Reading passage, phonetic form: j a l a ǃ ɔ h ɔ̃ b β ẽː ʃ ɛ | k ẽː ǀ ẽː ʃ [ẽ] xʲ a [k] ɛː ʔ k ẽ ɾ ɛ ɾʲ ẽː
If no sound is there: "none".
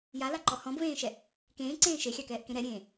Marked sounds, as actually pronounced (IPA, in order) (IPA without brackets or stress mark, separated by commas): e, k